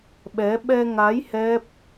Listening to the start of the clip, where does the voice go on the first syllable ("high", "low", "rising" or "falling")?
rising